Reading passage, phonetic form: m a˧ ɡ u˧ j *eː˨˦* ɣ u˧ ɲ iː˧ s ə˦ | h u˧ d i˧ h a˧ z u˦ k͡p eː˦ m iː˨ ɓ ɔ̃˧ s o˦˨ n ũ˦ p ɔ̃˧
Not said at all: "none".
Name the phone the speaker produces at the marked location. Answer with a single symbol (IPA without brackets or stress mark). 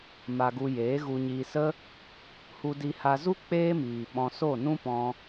eː˨˦